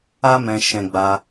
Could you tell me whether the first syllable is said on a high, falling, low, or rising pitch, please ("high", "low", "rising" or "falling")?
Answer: high